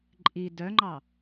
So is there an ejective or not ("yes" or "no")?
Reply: yes